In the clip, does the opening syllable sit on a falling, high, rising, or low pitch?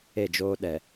falling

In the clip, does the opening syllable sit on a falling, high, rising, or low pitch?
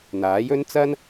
rising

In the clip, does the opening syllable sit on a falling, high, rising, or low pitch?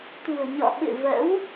low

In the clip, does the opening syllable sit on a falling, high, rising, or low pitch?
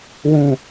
low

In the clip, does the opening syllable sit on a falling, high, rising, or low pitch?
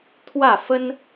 falling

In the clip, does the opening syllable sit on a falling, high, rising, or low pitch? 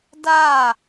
falling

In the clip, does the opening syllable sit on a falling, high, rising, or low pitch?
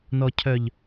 low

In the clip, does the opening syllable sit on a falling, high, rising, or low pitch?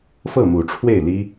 falling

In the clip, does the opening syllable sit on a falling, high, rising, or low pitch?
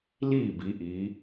falling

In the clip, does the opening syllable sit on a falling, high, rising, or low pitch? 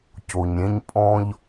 low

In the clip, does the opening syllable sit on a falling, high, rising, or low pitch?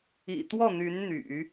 low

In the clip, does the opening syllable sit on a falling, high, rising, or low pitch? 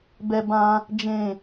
high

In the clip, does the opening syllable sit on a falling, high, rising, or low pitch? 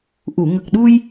low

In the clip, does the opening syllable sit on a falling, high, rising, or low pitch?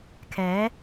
rising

